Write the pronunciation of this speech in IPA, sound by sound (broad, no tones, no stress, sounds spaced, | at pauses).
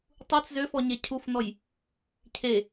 tˤ u t͡s z ø f ɔ ɲ e cʰ u f n ɔ j | cʰ e